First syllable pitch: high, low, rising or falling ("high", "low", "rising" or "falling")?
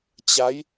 rising